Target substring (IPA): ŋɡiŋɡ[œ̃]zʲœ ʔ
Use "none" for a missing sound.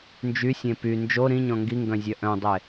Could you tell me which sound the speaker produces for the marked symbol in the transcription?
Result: œ̃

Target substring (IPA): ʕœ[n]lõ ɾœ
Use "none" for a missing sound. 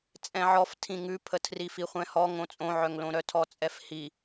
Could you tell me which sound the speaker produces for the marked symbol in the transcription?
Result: ŋ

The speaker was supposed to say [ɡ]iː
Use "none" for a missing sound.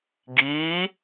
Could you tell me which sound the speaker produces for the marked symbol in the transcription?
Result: ɡ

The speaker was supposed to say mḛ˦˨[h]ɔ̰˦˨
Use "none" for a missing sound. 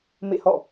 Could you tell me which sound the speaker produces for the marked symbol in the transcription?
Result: h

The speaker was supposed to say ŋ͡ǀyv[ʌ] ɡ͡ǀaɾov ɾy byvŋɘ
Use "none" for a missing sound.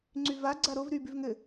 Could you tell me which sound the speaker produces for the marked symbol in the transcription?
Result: a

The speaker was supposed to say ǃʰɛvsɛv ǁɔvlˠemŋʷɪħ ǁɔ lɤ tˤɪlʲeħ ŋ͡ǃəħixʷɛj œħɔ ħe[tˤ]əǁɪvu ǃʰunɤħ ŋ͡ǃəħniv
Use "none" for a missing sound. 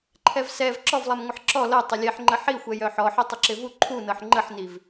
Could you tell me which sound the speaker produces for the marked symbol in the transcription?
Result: tˤ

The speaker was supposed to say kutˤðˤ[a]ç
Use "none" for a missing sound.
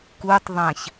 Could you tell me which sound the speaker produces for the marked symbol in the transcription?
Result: ã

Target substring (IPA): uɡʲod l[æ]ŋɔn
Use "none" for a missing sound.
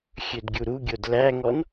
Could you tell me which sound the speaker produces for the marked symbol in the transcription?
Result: æ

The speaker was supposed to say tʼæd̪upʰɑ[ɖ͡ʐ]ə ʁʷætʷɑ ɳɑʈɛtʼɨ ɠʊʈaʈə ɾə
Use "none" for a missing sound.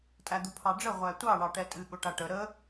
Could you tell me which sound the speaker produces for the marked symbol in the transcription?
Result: ɖ͡ʐ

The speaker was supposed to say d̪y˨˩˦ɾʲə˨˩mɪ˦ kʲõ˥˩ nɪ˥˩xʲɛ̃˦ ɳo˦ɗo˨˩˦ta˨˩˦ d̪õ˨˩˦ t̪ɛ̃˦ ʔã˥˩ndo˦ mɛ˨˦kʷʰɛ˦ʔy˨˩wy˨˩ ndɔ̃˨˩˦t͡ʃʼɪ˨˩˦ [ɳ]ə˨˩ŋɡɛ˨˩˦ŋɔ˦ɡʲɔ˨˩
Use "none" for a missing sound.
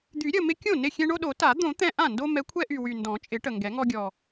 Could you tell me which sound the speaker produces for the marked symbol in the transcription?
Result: ʈ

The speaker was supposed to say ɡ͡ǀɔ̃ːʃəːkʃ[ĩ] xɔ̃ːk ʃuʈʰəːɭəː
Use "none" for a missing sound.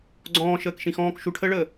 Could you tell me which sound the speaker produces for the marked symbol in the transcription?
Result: ĩ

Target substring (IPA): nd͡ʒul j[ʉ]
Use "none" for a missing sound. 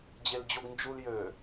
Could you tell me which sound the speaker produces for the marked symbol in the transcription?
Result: ø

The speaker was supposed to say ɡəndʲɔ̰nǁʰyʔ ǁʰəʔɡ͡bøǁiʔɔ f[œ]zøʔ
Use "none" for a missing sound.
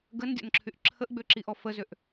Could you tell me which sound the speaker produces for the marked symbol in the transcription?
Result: ə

